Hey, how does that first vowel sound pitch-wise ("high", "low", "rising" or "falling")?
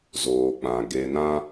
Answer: low